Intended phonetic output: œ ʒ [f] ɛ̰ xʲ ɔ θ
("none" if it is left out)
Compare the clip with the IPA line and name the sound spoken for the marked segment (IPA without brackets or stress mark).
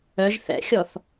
θ